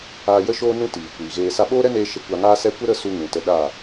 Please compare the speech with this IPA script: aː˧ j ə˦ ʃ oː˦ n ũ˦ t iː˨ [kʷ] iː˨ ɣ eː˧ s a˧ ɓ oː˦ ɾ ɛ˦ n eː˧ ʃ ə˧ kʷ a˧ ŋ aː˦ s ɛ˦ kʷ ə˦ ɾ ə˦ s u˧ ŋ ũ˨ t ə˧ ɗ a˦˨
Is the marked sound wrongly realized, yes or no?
no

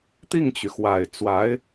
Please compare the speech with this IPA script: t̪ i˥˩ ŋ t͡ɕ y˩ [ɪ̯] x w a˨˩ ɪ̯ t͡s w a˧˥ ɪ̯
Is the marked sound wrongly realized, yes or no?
yes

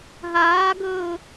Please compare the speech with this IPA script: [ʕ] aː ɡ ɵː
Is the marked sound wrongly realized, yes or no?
yes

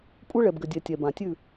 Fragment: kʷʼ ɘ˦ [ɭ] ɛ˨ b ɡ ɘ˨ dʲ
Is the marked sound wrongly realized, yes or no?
no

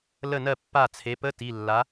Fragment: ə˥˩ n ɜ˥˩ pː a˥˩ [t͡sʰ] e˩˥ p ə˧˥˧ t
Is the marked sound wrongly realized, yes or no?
no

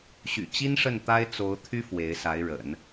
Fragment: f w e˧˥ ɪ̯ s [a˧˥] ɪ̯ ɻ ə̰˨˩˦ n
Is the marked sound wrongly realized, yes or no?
no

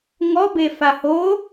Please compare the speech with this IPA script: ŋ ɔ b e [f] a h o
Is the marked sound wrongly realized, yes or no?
no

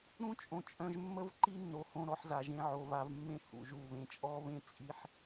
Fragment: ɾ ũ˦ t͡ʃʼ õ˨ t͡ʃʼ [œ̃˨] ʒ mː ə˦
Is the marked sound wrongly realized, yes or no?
no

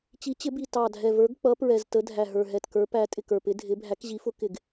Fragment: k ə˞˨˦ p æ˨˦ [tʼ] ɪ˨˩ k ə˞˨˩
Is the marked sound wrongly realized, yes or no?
no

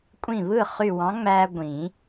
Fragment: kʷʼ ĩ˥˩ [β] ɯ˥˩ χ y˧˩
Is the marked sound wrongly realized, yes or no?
no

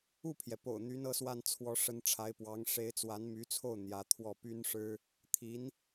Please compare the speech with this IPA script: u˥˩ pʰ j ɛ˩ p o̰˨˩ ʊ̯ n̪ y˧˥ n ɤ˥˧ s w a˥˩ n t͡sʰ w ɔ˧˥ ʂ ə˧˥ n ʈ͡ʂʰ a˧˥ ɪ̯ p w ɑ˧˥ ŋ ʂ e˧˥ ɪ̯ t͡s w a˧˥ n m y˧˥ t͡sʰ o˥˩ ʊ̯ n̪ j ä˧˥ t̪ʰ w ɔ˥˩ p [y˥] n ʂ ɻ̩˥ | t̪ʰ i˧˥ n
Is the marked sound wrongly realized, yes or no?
no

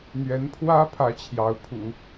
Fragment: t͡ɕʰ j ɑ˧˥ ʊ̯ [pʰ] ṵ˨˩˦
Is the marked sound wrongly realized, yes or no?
no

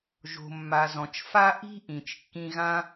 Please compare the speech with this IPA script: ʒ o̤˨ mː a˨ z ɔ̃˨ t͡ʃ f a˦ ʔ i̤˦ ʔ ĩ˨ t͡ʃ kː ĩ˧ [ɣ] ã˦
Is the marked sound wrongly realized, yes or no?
no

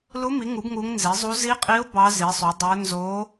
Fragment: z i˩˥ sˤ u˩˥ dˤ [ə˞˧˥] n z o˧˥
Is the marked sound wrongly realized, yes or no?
no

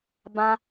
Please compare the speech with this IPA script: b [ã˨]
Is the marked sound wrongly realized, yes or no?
yes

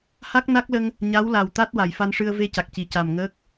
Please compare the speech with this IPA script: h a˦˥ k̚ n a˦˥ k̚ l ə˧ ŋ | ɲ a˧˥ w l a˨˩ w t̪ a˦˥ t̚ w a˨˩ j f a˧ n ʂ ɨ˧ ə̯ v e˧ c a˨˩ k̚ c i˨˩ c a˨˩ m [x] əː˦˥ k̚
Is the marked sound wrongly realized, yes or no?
yes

